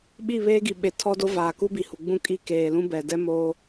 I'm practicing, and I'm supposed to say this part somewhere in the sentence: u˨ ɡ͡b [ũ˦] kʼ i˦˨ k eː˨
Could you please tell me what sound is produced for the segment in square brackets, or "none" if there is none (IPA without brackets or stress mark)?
ũ˦